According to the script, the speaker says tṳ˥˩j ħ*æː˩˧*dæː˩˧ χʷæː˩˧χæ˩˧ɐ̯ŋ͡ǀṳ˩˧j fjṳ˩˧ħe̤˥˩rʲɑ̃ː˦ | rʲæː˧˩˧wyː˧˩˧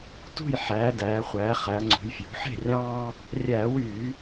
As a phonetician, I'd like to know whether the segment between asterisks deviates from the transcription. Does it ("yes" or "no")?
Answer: no